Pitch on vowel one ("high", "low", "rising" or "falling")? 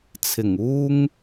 low